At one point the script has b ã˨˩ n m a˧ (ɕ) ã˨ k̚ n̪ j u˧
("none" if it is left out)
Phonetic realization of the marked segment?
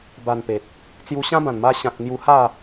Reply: ɕ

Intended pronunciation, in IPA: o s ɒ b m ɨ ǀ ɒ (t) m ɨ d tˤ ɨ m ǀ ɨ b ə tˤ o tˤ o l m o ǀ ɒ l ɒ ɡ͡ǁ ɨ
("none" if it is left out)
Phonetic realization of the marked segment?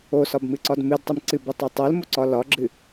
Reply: d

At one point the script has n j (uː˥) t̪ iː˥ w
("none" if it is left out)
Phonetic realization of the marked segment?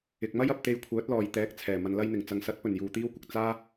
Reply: uː˨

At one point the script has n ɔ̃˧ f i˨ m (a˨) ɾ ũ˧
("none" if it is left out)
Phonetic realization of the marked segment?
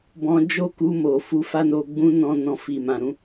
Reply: ã˨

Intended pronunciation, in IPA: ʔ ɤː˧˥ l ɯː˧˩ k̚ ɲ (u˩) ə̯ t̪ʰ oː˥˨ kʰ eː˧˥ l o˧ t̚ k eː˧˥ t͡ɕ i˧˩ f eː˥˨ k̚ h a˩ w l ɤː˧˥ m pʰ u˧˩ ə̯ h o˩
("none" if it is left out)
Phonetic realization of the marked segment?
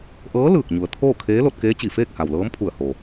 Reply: u˩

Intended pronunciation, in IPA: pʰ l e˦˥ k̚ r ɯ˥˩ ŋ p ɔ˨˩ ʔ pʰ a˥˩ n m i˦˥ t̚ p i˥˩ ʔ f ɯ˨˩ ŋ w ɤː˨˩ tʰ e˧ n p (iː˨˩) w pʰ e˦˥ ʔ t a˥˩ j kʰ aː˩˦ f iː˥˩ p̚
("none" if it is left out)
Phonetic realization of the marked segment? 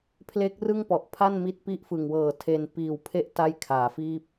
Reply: iː˨˩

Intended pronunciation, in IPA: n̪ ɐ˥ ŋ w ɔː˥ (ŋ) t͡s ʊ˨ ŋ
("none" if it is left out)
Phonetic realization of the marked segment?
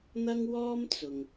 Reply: m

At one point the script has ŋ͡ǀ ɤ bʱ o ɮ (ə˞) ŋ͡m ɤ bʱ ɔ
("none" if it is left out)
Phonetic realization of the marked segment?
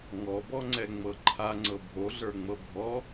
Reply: ə˞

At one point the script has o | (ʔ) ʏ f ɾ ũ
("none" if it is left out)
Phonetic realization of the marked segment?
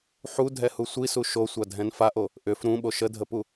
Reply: ʔ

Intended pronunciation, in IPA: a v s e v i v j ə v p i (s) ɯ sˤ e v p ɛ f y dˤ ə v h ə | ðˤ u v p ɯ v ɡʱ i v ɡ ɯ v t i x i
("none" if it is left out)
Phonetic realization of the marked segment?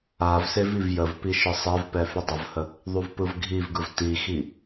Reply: ʃ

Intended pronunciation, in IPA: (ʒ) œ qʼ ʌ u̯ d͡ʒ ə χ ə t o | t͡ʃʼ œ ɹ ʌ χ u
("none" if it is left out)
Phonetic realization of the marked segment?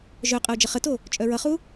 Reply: ʒ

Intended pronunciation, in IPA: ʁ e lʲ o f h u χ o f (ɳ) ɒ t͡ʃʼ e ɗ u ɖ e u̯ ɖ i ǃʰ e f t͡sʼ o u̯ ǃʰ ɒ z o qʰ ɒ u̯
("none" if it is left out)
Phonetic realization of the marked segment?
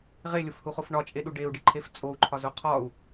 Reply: ɳ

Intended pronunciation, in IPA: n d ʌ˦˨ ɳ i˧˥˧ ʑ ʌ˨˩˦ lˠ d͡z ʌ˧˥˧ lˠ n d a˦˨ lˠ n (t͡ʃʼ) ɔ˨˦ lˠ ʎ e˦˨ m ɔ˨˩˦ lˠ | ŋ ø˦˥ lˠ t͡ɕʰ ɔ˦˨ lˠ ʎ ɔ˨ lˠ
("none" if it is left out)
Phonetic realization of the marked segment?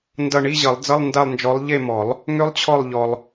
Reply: d͡ʒ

